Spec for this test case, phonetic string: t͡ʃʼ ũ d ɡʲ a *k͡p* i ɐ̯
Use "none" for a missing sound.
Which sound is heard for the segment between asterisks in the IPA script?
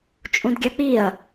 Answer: k͡p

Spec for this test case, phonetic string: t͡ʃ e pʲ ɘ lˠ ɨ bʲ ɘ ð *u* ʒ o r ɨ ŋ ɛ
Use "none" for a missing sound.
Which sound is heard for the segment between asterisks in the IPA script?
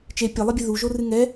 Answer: u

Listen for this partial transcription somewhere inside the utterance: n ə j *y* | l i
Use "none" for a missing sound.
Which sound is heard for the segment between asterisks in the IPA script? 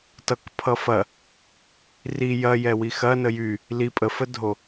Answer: y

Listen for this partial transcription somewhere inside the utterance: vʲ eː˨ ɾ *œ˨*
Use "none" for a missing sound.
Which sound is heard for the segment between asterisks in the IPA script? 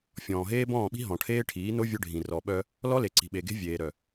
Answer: œ˨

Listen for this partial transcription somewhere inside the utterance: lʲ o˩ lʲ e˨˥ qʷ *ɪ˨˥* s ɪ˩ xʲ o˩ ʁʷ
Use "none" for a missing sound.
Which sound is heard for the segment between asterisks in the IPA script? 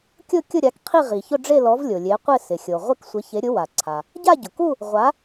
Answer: ɪ˥˧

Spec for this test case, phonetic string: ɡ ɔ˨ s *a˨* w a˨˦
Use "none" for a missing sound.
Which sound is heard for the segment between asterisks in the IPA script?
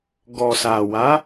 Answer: a˨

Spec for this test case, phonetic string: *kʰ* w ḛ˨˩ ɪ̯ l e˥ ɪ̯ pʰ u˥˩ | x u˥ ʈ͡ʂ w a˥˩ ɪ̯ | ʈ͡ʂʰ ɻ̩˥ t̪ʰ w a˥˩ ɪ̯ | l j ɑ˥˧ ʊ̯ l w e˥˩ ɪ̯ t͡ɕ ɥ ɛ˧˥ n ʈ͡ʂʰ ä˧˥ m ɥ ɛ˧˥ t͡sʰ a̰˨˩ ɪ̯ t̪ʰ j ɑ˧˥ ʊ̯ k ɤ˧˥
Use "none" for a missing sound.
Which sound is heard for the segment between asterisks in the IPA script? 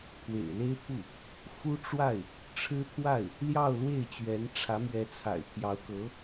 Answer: kʰ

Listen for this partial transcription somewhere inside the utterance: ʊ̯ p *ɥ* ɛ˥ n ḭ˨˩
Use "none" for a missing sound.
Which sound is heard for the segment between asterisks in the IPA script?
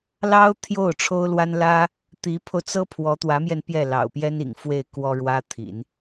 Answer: j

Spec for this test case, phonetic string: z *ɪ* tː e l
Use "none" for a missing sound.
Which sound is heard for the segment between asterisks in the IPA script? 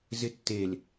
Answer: ɪ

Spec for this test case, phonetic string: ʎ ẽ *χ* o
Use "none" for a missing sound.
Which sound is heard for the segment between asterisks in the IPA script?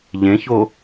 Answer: ç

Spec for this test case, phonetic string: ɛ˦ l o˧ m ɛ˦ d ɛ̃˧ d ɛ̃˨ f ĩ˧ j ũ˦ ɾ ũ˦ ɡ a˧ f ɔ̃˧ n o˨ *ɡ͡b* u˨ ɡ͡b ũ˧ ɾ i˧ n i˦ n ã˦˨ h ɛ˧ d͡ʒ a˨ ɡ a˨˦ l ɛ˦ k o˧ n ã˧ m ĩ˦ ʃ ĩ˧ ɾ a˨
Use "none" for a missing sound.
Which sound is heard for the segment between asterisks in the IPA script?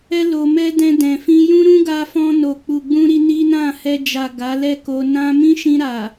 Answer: k͡p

